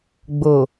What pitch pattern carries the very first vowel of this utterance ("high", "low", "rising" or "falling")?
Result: low